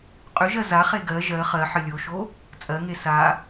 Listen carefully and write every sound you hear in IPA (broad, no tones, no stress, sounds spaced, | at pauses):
qʼ ʏ ʒ ɜ z a χ e ɡ ɜ ʒ ɜ χ ɜ ħ ə lʲ o ʃ o | t͡sʼ ɜ ŋ e s a